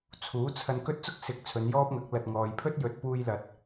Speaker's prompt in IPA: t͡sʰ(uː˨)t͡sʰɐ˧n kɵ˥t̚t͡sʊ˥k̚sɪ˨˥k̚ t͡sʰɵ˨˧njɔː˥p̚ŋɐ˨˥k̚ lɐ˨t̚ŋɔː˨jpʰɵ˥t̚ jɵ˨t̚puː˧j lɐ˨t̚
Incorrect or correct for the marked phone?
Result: incorrect: uː˨˥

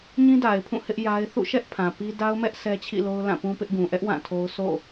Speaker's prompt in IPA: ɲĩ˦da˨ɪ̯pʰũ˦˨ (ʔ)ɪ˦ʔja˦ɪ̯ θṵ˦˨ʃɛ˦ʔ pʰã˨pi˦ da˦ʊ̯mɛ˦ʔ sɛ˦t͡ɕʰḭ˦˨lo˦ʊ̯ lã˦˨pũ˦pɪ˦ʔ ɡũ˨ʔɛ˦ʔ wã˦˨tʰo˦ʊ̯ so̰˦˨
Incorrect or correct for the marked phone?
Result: incorrect: h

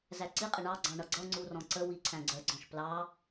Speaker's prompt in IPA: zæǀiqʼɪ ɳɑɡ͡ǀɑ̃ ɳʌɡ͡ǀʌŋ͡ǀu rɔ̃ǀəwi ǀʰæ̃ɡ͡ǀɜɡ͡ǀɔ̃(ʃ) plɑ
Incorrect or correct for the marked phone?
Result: correct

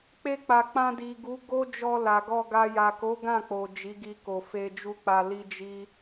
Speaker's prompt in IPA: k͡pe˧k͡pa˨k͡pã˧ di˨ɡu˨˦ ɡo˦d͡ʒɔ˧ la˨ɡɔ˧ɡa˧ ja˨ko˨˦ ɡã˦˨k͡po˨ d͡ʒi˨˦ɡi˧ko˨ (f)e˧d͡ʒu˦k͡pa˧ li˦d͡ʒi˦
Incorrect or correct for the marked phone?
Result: correct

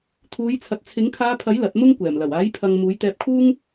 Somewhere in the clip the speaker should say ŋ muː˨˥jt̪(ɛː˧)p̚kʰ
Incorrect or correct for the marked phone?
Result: correct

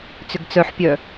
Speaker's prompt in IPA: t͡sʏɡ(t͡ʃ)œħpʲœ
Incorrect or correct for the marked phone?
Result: incorrect: t͡s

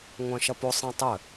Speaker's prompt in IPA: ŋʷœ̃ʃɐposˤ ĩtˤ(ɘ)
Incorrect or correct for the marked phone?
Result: correct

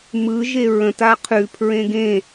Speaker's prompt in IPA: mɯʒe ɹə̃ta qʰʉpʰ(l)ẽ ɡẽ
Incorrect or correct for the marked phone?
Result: incorrect: ɹ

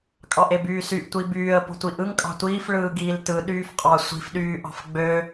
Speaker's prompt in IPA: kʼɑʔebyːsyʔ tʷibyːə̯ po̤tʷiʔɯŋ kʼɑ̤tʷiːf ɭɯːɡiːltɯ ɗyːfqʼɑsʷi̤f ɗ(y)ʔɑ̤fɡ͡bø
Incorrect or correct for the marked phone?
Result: incorrect: yː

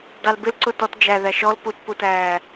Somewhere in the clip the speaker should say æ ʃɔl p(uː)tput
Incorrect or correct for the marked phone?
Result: incorrect: u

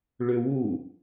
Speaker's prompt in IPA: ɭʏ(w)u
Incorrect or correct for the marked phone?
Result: correct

